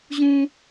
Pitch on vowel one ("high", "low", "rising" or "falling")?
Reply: high